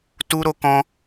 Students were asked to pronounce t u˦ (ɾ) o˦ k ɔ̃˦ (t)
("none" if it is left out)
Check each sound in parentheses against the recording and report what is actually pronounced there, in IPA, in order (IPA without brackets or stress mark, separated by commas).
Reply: ɾ, none